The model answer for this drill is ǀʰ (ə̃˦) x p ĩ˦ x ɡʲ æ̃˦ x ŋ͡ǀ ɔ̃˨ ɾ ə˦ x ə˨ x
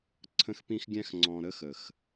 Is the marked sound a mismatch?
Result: no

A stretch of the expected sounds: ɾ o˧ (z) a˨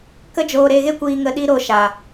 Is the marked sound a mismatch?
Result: yes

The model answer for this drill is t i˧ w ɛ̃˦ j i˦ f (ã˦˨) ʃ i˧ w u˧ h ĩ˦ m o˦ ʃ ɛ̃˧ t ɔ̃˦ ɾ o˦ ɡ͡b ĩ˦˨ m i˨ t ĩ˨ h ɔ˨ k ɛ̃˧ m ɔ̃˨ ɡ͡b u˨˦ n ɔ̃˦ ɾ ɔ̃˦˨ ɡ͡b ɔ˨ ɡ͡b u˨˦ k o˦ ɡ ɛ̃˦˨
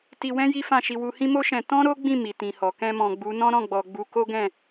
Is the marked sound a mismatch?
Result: no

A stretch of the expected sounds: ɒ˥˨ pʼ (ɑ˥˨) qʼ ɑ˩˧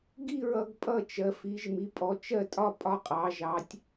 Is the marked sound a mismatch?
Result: yes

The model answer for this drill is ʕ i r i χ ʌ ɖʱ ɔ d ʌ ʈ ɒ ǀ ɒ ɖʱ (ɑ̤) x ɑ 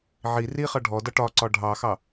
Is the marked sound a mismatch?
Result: yes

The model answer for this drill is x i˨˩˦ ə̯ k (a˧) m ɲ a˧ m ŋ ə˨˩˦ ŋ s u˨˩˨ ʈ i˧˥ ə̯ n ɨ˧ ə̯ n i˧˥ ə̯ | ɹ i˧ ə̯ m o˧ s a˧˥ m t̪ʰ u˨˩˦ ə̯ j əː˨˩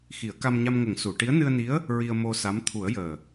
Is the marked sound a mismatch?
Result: no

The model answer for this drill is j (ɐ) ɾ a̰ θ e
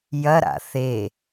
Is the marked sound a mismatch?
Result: no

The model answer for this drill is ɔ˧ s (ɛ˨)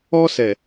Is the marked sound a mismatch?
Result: no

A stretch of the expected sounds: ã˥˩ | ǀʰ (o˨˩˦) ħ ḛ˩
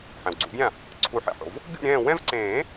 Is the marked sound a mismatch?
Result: yes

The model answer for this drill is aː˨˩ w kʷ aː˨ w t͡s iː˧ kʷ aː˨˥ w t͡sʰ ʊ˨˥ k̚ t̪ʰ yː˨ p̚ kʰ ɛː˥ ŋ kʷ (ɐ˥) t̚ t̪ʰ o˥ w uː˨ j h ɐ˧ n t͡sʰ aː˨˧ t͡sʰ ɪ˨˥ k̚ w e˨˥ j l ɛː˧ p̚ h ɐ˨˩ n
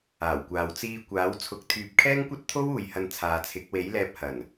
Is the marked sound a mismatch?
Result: no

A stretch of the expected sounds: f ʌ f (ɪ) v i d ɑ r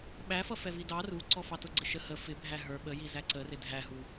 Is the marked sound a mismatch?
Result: yes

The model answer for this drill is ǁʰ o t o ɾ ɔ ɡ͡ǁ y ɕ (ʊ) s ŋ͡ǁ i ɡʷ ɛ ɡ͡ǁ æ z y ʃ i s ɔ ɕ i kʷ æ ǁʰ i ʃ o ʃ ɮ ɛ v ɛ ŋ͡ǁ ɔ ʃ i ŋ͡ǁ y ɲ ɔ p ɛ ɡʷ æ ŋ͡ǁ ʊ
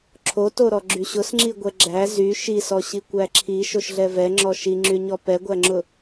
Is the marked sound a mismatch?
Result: no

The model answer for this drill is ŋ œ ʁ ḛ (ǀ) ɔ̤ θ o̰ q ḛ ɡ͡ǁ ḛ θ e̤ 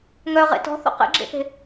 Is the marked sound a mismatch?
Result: yes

